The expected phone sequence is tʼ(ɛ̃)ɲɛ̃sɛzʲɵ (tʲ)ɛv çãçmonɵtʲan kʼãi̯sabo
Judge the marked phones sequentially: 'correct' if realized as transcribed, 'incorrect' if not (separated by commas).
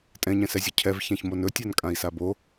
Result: correct, incorrect